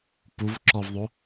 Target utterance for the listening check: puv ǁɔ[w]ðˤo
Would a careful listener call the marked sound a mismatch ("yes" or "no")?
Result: yes